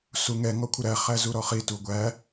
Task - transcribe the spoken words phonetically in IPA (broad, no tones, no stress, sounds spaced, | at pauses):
s u ŋ ɛ ŋ ɔ kʷʰ ə ɾ æ χ æ z u ɾ ɔ χ i t u ɡʷ æ